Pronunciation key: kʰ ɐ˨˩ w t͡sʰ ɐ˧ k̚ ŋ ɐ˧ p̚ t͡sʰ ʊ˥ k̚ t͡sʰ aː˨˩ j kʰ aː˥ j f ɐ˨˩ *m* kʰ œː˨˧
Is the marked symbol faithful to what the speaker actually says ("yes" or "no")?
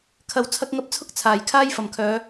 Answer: yes